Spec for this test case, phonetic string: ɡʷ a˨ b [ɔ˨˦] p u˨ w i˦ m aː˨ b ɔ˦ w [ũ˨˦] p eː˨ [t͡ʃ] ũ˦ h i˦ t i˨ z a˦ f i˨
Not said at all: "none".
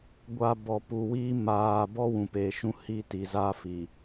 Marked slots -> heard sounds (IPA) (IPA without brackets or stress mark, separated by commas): ɔ˨, ũ˨, ʃ